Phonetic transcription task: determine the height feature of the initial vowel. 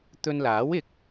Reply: mid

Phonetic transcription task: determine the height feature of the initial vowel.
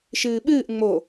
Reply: high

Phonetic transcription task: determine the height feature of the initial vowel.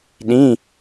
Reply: high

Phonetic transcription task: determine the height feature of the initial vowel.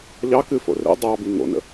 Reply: low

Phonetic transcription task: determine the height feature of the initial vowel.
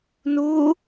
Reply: high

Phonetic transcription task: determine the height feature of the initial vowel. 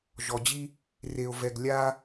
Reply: mid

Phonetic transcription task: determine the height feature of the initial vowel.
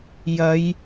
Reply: low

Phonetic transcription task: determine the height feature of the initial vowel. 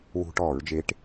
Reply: high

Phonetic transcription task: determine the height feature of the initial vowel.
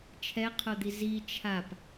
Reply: mid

